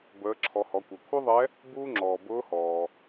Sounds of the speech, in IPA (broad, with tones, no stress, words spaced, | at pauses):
bəː˩˧ǁʰɔ˩˧hɔ˩˧kʷœ˩ kʷʰœ˥ðˤɛ˧˥ | buː˥ŋ͡ǁɔː˩ bʊː˧˥hɔː˩